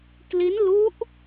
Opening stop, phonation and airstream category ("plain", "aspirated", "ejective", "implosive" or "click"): plain